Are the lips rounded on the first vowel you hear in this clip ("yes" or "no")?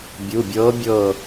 yes